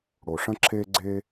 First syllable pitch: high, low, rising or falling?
low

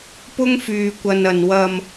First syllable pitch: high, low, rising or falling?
high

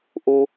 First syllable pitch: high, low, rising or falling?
high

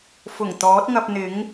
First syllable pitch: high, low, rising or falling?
low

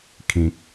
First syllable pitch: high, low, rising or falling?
low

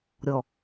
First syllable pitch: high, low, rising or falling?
low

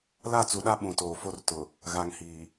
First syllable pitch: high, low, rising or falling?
falling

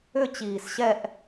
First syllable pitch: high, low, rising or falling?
falling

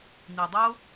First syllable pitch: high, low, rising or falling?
low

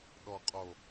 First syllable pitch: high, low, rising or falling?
low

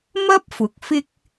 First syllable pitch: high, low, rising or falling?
high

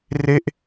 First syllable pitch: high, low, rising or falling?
falling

